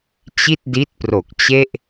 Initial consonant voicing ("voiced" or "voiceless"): voiceless